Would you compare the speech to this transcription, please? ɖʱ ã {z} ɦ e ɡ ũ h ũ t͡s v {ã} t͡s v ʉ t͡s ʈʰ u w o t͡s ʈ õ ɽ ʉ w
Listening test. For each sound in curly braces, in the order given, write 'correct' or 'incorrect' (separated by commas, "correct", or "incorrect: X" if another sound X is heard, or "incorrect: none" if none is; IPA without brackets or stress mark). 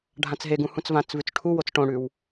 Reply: incorrect: t͡s, correct